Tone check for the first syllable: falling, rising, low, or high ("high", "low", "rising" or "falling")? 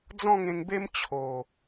falling